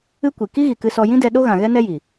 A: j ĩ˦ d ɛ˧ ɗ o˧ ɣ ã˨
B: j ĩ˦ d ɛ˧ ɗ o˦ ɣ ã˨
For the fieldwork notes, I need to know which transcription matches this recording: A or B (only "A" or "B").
B